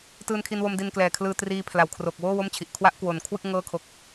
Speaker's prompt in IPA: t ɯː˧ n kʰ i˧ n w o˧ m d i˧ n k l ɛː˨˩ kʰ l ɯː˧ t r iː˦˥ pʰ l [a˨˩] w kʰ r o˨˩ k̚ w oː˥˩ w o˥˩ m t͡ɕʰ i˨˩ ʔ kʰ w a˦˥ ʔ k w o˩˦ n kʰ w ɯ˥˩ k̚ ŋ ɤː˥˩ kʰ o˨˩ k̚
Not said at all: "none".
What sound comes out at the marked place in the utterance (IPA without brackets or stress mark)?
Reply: a˨˩